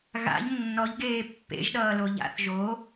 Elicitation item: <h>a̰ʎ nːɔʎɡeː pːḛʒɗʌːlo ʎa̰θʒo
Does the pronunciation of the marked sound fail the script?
yes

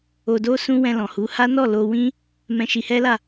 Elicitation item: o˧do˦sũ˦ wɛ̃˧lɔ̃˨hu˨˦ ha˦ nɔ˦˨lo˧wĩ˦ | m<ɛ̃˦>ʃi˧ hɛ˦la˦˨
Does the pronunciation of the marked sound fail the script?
no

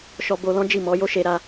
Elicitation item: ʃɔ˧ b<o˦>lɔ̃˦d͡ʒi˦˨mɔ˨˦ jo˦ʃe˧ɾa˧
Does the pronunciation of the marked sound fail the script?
yes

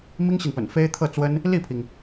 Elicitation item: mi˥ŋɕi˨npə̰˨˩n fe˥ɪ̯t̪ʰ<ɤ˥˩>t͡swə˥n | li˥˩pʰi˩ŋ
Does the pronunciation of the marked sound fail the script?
no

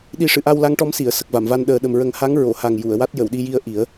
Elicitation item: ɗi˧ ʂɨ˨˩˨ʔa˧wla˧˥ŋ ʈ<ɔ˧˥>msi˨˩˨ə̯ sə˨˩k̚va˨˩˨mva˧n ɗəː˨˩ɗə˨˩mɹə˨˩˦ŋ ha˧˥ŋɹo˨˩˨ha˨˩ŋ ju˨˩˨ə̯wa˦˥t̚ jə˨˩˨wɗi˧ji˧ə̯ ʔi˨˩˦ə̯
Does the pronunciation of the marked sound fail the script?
no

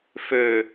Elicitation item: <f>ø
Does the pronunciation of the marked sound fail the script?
no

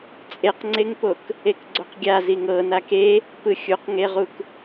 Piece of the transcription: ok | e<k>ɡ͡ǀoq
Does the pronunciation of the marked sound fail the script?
no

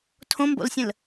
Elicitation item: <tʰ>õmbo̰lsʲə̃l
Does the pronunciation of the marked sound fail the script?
no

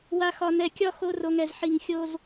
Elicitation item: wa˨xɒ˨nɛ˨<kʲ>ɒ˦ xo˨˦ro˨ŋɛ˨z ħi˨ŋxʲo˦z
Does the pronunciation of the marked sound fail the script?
no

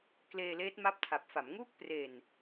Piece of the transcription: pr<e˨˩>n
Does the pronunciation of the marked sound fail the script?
no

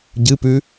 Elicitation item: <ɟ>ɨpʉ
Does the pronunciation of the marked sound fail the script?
no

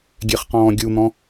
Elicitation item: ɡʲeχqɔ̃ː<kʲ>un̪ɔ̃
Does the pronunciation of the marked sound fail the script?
yes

